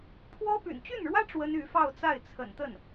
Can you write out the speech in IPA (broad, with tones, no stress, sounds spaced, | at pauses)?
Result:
pʰ w ɔ˥ p y̰˨˩ n t͡ɕ y˥˩ n ɻ w ä˥ ʈ͡ʂ w ə˥ n y˧˥ f ɑ˥˧ ʊ̯ t͡s a˥˩ ɪ̯ t͡sʰ ə̰˨˩ n t̪ ə˥˩ n